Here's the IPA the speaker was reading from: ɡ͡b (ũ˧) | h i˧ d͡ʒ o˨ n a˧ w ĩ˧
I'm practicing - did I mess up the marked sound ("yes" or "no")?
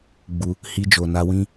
yes